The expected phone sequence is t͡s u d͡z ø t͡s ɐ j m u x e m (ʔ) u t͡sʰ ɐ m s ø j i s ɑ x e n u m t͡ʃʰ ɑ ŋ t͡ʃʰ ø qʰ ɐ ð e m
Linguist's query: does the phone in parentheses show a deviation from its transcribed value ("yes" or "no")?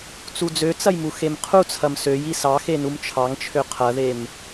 yes